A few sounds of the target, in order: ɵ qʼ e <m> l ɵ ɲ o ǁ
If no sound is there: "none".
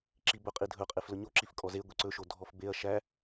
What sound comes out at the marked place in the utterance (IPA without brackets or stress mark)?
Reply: f